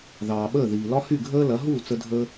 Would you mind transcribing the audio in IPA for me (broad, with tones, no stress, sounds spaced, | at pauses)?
ð ɑː˩ ɓ əː˥˩ ð iː˩ l ɒ˥ h y˥˩ ɡʱ əː˥ l ɐ˩˥ ɦ uː˥˩ t͡s ə˧ dʱ əː˧